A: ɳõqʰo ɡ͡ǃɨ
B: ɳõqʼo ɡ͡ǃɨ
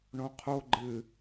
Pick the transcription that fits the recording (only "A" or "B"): A